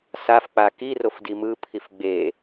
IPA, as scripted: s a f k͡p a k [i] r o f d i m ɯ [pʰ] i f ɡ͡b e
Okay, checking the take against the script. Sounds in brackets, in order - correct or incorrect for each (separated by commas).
correct, correct